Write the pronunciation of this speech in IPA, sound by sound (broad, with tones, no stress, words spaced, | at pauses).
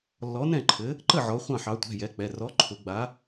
lːɔ˨˥nɛ̃˥˩ǃʰɘ˨˥ | ǃə˥˩ʕɔ˩˧ χʷɑ̃˥˩ħɑ˨˥ tʷɛ̤˩˧˩ jɛ˨˥k͡pɛ˩˧˩ rɔ˨˥ǃʰʊ˩˧ ɡ͡ba˨˥